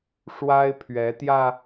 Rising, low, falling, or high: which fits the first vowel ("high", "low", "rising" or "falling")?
high